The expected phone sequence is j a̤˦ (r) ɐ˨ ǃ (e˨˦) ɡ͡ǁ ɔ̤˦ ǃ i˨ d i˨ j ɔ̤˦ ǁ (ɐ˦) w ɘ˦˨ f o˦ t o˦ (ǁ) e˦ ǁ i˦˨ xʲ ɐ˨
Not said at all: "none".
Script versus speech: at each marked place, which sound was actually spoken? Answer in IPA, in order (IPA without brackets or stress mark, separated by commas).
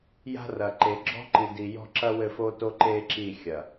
r, e˨˦, ɐ˦, ǃ